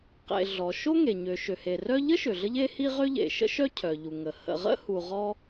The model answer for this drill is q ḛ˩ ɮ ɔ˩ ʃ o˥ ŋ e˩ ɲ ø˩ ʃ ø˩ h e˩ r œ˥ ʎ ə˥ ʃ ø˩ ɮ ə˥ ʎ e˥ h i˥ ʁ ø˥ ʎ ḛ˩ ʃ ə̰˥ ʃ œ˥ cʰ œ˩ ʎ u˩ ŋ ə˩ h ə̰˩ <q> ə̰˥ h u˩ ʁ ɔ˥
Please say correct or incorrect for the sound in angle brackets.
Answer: incorrect